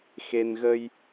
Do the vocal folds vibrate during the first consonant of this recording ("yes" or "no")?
no